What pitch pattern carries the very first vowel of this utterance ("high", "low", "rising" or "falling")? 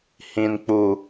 low